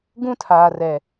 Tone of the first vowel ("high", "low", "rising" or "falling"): high